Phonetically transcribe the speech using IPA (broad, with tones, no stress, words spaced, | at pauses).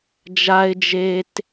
d͡ʒa˥ɪ̯d͡ʒe˥t